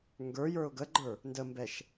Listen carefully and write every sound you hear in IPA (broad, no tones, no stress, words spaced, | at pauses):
ŋɡə˞jə˞ʊ̯ ɡəɡ͡ǃə˞ | ndəmbɛʃ